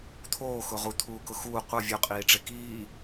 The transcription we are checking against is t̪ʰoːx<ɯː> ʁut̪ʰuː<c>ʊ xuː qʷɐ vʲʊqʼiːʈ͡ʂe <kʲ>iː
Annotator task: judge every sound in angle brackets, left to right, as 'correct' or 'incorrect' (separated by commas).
incorrect, incorrect, incorrect